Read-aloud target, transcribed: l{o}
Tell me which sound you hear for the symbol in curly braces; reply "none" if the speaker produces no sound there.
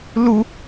u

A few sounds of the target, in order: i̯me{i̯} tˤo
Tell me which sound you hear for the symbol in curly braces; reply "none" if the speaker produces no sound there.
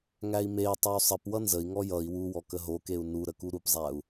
i̯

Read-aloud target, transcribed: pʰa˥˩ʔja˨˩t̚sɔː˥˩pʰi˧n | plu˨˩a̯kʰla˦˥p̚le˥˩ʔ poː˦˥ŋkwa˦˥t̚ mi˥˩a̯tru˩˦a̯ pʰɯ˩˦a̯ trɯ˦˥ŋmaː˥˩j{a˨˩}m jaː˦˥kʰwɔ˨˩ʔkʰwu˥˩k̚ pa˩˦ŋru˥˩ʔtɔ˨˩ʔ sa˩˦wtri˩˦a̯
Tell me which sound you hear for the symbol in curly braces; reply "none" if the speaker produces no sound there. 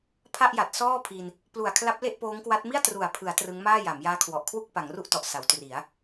a˩˦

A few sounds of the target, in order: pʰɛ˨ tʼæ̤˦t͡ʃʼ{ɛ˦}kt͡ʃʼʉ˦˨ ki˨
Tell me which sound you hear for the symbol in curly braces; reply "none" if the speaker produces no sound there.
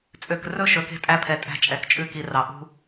ɛ˨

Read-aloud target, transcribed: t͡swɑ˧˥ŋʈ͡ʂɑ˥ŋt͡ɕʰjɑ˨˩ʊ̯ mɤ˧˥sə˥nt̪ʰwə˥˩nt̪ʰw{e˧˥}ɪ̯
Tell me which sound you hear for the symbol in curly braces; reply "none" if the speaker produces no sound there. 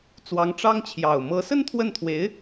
e˧˥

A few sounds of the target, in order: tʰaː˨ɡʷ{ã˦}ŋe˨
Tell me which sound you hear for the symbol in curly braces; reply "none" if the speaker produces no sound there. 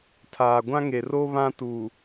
ã˦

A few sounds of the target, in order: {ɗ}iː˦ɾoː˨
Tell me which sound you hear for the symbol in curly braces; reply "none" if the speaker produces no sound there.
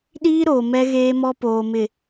ɗ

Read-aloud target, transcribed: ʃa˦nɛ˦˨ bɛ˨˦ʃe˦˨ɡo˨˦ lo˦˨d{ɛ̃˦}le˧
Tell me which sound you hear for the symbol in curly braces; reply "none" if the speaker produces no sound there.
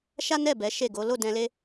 ɛ̃˧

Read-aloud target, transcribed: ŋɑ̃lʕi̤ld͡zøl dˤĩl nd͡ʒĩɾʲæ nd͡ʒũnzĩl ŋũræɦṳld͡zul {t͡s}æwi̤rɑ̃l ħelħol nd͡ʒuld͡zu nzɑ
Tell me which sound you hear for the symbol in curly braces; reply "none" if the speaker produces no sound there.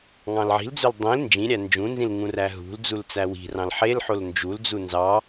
t͡s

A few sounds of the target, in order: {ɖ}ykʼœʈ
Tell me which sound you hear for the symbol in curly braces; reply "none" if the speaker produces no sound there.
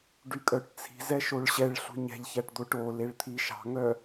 ɖ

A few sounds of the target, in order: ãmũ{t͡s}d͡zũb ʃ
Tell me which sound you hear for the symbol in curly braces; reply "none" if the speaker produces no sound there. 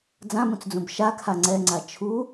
t͡s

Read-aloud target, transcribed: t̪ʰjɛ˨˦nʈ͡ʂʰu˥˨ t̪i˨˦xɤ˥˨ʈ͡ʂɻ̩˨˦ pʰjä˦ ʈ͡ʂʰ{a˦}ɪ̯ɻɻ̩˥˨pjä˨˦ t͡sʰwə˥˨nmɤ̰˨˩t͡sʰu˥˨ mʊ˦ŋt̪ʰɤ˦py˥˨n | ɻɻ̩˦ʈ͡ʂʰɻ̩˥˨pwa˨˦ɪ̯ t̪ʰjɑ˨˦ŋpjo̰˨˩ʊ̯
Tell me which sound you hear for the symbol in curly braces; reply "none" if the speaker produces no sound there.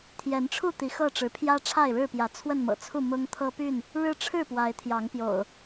a˥˨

